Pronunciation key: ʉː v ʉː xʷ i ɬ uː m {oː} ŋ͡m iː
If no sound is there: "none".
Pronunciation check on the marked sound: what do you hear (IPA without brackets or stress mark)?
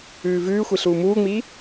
uː